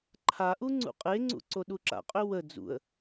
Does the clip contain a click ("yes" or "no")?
yes